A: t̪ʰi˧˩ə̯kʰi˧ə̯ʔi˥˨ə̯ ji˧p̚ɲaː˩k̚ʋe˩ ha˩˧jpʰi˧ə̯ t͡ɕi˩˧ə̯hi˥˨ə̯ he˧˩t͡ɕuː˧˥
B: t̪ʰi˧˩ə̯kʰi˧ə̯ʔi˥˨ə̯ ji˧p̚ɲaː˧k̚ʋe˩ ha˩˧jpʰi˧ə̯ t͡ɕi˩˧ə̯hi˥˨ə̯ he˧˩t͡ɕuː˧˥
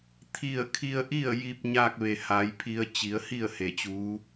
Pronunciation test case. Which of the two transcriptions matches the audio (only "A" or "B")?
B